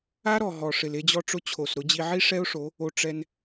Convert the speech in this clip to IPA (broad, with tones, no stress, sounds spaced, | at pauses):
a˦ ɾ ɔ˨ ɦ ɔ˨ ʂ ɪ˨ l e˧ d͡ʑ ɔ˧ ʈ͡ʂ ʊ˧ t͡ɕʰ o˨ s ɾ ʊ˨˦ d͡ʑ i˧ ʕ i˦ ʂ ɛ˦ ʊ̯ ʂ o˨˦ | o˧ ʈ͡ʂ ɛ˧ n